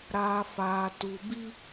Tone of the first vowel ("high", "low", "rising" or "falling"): low